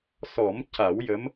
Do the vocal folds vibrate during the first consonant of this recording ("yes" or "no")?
no